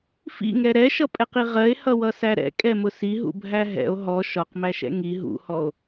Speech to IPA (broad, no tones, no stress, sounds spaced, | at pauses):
f ḭ ŋ ɛ ɾ ɛ ʃ ʌ pʼ ɛ q i ʁ ɜ e̯ h ʌ w ʌ s æ ɾ ɛ̰ kʼ ɛ m ʊ s i ɦ ṵ bʱ æ ɦ ɛ̰ o̯ ɦ ɔ ʃ ɒ q m æ ʃ ɛ̰ ŋ i ɦ ṵ h ɔ o̯